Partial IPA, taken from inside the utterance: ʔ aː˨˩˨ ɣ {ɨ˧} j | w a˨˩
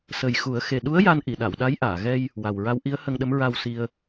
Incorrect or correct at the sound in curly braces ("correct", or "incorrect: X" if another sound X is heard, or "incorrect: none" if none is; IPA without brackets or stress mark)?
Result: incorrect: ɛ˧